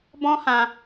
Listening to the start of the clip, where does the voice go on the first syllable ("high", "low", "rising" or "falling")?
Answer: high